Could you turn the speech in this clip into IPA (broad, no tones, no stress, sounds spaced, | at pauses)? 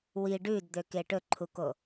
w i ɖ ʉ d d̪ ø k e ʈ ɵ ǃʰ u k o